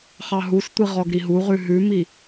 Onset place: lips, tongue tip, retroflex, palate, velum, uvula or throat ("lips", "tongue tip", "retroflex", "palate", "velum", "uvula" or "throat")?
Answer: uvula